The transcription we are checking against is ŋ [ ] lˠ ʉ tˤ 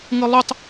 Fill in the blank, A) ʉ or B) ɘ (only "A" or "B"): B